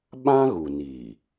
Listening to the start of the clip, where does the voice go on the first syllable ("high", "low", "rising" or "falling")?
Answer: high